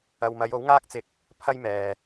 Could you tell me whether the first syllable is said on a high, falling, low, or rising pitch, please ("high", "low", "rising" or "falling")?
low